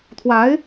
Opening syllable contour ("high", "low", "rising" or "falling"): rising